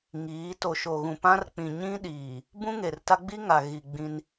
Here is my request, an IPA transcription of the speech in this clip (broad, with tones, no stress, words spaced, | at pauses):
ŋiː˨˦ to˨ ʃo˨ ɣũ˨pã˦rk͡pĩ˨ ɲĩ˦ɗiː˨ | bũ˦ŋe˨rta˦ ɡ͡bi˦ŋa˨ɣi˨ ɡ͡bĩ˦n